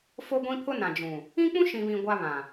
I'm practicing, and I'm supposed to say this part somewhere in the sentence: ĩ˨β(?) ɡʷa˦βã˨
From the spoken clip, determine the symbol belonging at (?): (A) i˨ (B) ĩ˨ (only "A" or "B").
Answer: B